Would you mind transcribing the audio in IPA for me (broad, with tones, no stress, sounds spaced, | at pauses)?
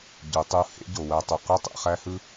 ɟ u˩˧ tˤ u˧˥ h ḛ˧˥ ɟ o˩ w æ˧ tˤ u˩ q ø˥ tˤ ḛ˩˧ χ æ˥ h ɯ˥